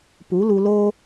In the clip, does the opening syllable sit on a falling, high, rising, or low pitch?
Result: rising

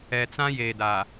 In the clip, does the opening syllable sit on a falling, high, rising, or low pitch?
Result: low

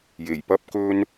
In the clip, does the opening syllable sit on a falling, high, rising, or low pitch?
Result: low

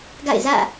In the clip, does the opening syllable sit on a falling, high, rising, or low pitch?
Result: falling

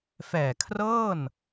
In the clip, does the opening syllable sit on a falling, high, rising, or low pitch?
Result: low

